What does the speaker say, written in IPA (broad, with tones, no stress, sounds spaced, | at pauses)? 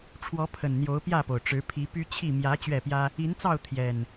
ʈ͡ʂʰ w ɔ˨˦ pʰ ə˨˩ n n̪ j o˨˦ ʊ̯ p j ä˥˨ p o˩ ʊ̯ ʈ͡ʂ ɻ̩˨˦ pʰ i˨˦ p y˦ t͡ɕʰ i˥˨ m j ä˨˦ t͡ɕ ɥ ɛ˥˨ p j ä˦ | i˨˦ n t͡s ɑ˥˨ ʊ̯ t̪ʰ j ɛ˨˩ n